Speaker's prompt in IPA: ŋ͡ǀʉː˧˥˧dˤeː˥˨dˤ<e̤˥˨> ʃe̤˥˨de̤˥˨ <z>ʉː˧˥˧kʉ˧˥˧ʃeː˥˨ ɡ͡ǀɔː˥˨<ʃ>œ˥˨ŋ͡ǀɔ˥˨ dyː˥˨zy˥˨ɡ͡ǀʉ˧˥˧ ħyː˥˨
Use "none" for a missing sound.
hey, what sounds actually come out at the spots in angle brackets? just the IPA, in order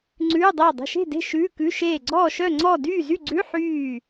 e̤˥˨, ʃ, ʃ

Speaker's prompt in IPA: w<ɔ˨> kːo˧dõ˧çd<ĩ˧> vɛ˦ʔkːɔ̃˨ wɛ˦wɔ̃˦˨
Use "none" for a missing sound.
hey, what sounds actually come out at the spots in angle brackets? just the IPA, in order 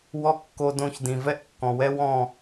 ɔ˦, ĩ˨

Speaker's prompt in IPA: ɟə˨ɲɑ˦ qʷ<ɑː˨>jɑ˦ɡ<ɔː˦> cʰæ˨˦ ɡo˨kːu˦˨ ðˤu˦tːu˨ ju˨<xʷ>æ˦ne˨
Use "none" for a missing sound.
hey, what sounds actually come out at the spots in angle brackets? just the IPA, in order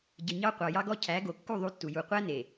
ɑ˨, ɔ˦, qʷ

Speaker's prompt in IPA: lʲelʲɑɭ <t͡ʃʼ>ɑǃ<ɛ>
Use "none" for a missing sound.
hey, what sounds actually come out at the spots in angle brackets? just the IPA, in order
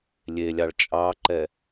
t͡ʃʼ, ɛ

